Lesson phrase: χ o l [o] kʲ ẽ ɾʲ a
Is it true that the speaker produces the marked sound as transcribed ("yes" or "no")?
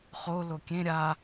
yes